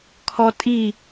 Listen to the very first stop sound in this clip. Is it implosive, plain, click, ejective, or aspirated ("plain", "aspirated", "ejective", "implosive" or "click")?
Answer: aspirated